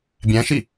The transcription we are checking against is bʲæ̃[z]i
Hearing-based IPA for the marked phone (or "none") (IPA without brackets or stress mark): ʃ